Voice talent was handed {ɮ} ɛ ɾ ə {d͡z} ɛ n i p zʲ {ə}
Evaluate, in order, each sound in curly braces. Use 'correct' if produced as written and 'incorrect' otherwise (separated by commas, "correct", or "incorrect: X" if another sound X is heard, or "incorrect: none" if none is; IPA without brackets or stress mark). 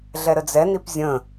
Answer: correct, correct, incorrect: ə̃